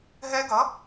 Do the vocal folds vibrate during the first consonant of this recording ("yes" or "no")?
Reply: yes